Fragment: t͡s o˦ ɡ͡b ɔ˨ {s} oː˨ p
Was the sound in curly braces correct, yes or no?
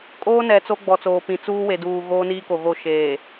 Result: no